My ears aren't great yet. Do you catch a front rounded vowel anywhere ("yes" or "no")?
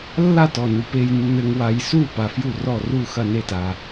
no